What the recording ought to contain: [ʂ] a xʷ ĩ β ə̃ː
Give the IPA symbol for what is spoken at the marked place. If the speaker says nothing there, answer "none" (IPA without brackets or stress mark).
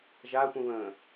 ʒ